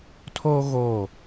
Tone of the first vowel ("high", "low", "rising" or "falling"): high